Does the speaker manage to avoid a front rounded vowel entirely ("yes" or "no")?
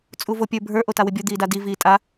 yes